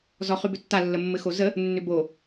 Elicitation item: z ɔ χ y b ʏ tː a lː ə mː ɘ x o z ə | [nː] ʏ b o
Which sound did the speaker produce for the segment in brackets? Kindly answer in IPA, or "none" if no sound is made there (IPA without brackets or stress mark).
nː